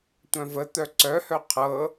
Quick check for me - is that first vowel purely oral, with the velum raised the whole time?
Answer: no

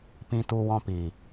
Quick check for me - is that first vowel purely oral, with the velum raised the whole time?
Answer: no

